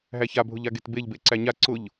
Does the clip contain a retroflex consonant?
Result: no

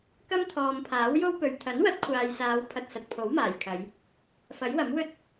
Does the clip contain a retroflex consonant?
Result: no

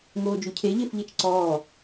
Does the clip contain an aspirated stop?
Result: yes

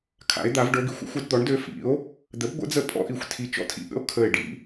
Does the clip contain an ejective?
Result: yes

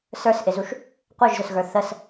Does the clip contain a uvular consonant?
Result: yes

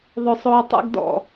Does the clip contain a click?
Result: no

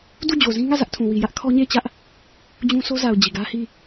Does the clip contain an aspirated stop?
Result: yes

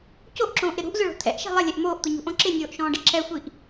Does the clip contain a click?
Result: yes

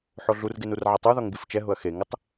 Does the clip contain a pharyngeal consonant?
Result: yes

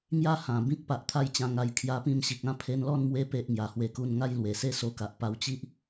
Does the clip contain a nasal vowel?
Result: yes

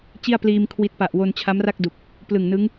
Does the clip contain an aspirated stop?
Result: yes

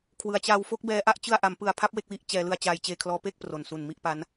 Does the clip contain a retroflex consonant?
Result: no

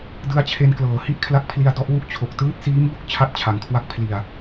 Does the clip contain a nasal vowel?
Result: no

